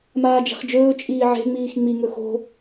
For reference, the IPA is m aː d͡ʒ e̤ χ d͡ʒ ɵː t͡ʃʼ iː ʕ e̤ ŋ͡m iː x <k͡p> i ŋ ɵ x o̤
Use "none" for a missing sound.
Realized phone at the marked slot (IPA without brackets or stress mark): ŋ͡m